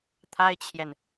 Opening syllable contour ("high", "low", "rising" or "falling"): high